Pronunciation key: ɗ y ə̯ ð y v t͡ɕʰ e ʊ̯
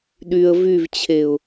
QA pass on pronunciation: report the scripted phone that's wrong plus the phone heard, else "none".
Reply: ð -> v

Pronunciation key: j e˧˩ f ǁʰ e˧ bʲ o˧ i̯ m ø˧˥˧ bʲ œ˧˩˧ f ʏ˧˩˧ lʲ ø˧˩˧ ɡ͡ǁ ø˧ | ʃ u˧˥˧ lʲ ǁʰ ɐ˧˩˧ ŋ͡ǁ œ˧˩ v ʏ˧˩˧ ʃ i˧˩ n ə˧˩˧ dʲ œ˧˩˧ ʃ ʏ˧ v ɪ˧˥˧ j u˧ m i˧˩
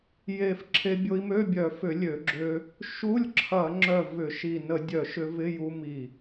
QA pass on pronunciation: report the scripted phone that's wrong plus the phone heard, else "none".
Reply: none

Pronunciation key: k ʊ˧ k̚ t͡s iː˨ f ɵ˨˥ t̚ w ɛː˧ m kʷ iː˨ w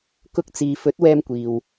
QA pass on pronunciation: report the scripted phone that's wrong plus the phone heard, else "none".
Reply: none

